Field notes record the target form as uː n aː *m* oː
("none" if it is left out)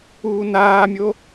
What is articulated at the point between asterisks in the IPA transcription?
mʲ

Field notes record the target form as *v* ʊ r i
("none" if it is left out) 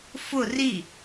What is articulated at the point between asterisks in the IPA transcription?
f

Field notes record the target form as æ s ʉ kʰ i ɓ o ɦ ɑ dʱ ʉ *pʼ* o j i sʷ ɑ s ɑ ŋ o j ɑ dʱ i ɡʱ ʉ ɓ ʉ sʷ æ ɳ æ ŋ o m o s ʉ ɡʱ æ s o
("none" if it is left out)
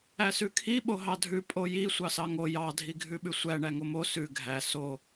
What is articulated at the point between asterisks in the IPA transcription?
pʼ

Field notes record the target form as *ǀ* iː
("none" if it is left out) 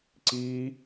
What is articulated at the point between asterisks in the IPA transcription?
ǀ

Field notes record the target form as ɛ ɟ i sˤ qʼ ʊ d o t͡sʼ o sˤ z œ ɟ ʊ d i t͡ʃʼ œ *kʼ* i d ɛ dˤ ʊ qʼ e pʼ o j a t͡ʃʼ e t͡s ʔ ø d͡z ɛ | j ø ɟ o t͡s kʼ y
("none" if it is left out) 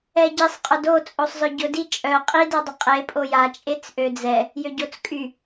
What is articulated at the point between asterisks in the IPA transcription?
qʼ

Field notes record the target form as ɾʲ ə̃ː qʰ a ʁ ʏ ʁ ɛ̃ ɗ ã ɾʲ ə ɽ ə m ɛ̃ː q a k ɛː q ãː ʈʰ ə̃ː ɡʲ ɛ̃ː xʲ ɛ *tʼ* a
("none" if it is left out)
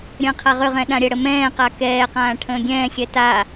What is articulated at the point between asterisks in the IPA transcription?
t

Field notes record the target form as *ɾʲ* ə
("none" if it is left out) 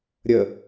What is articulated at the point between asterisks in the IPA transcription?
ɾʲ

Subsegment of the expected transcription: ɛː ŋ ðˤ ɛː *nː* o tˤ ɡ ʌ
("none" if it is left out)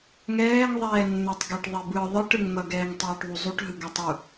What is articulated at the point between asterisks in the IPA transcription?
nː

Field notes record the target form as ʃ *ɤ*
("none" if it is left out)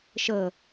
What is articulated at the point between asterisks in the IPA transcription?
ɤ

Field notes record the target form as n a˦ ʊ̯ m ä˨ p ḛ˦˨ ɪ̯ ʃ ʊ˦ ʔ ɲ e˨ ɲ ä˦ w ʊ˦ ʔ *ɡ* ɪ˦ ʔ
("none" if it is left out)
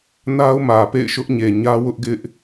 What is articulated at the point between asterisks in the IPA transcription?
ɡ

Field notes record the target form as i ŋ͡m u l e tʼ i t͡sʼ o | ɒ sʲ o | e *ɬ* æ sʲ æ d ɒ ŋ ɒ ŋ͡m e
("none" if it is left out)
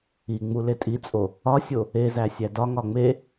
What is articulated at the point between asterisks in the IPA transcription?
z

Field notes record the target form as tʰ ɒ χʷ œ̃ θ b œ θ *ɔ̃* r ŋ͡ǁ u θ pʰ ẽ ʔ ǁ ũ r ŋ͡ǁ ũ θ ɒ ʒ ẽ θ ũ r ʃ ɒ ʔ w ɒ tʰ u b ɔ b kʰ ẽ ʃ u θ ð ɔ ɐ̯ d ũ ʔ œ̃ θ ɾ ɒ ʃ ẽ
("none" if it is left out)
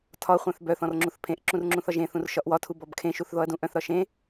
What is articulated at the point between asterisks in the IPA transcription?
ɔ̃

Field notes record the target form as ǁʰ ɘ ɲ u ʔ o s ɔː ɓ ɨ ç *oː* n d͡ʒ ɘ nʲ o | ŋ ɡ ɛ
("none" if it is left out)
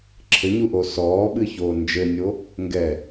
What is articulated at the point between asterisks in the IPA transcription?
oː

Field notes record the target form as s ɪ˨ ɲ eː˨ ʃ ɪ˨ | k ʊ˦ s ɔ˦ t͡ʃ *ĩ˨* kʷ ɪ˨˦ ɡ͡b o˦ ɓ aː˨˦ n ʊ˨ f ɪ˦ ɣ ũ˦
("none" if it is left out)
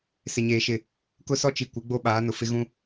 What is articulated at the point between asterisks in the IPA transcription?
i˨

